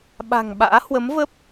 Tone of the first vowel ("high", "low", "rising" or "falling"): low